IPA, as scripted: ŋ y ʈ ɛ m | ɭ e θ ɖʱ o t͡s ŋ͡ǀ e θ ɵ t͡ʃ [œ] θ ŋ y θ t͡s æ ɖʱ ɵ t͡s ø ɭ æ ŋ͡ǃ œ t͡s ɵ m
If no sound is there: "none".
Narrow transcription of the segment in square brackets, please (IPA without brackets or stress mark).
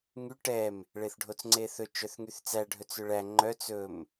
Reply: œ